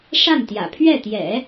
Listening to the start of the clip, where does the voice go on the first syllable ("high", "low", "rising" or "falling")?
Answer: falling